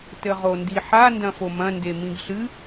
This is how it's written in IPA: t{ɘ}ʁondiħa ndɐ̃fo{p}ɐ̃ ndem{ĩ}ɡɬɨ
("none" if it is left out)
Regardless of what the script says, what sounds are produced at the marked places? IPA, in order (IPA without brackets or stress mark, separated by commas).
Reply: ɘ, m, ĩ